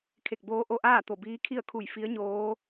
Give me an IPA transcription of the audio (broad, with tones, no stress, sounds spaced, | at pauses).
kʰ e˧˩ k̚ b oː˧˥ ʔ o˧ ʔ aː˥˨ t̪ o˧˩ b iː˧˥ kʰ i˥˨ ə̯ kʰ u˧˩ j f i˧˥ ə̯ ɲ oː˧˥